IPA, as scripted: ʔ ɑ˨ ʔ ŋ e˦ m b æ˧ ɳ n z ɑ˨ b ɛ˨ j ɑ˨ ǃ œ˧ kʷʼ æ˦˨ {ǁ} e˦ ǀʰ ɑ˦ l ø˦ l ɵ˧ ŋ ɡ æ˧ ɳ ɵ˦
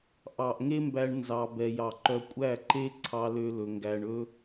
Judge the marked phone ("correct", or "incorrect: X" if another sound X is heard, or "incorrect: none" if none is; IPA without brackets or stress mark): incorrect: ǃ